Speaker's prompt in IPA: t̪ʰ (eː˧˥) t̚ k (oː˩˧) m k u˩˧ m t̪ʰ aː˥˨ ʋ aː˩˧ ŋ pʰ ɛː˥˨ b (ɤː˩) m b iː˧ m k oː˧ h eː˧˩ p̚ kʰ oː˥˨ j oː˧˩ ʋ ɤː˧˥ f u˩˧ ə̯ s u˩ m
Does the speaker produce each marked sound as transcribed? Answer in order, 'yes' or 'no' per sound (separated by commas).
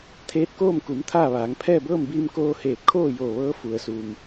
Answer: yes, no, no